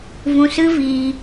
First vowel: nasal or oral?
nasal